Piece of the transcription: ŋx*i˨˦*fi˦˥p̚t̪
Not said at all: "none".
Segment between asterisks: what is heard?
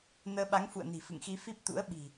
i˧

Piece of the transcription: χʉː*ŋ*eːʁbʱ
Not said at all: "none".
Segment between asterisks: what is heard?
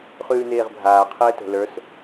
n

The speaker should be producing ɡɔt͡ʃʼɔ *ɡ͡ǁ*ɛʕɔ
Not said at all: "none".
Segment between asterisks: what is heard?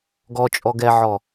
ɡ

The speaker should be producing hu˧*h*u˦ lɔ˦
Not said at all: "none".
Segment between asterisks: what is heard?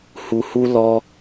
h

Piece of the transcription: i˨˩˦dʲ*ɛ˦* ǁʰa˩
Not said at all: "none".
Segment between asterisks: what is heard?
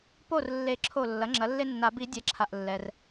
ɛ˩˥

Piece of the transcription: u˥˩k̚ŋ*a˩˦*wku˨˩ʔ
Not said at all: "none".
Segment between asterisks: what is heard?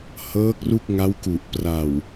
a˦˥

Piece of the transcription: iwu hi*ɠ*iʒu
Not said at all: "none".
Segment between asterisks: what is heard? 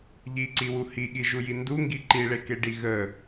ɠ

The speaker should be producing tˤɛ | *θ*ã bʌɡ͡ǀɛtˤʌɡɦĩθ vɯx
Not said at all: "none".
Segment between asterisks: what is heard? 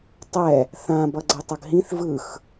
θ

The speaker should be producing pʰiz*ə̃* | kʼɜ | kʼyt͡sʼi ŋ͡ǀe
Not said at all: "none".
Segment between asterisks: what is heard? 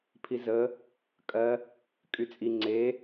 ə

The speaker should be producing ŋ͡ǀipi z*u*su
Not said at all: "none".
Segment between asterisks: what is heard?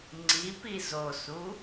o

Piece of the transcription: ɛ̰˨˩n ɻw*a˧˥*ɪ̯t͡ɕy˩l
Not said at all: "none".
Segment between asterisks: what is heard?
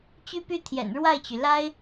a˥˩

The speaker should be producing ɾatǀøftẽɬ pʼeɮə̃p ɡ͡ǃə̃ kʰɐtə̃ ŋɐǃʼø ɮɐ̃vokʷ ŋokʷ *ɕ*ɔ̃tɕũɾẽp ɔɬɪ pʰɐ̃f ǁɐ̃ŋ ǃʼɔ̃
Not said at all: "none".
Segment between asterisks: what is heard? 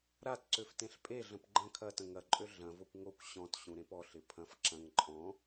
ɕ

